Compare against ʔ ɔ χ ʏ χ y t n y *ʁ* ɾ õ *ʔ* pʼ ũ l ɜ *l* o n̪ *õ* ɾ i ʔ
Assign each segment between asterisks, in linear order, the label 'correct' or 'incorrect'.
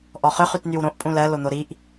incorrect: w, correct, correct, incorrect: o

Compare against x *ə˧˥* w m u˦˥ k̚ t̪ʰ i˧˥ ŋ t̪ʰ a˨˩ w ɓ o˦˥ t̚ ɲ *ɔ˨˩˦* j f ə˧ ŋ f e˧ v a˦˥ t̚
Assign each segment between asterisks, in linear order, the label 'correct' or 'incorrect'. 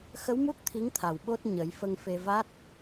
correct, incorrect: ə˨˩˦

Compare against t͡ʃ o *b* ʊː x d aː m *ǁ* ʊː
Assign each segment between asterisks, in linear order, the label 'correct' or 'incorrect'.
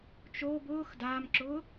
correct, correct

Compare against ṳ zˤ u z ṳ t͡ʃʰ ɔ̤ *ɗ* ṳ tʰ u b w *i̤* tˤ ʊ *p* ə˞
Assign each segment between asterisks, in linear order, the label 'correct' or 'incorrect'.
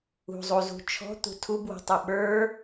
incorrect: t̪, correct, incorrect: ɓ

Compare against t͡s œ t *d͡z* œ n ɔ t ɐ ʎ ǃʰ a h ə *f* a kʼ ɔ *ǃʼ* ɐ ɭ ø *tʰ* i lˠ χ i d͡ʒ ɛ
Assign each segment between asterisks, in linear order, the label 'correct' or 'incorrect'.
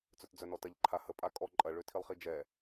correct, incorrect: pʼ, correct, correct

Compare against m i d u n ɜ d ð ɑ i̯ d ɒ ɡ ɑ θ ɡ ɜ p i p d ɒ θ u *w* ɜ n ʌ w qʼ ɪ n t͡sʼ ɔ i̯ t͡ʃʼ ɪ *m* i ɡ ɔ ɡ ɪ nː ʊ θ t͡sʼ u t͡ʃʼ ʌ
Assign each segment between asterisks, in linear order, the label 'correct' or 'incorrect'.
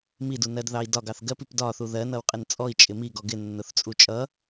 incorrect: ð, correct

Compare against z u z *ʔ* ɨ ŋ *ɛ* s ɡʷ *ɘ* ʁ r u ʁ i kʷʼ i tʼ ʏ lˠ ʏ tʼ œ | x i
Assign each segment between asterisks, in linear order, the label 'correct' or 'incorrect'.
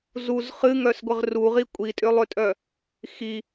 incorrect: χ, incorrect: œ, correct

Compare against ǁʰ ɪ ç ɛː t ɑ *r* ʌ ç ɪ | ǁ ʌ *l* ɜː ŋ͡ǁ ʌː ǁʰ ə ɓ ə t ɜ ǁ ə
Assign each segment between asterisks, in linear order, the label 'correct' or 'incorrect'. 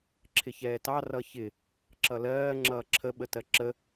correct, correct

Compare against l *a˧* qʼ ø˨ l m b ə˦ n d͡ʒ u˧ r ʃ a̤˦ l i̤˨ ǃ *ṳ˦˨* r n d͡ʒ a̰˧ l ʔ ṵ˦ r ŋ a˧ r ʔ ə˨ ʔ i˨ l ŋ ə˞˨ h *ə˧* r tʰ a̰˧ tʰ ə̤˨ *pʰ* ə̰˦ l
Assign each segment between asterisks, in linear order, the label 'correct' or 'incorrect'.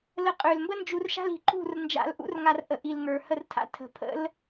incorrect: ə˧, correct, correct, correct

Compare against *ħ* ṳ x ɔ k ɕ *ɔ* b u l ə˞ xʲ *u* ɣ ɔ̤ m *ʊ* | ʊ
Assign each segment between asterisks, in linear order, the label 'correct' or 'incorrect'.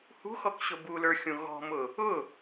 incorrect: h, incorrect: ʊ, incorrect: ũ, correct

